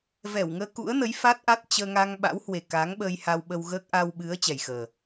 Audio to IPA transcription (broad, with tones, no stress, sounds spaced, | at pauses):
v ɛ˧˩ w ŋ əː˧ k ṵ˧˥ ə̯ n ə˨˦ j f a˦˥ t̚ ʔ a˦˥ t̚ t͡ɕ əː˧ ŋ a˧ ŋ ɓ a̰˧˥ w h w e˨˩ k a˨˦ ŋ ɓ ə˧ j h a˧ w ɓ ə˧ w ɣ əː˦˥ k̚ ʔ a˧ w ɓ ɨ˨˦ ə̯ t͡ɕ ɛ˨˩ j x əː˨˩